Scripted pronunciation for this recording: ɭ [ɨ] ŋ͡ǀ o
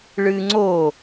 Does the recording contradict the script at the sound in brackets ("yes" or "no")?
no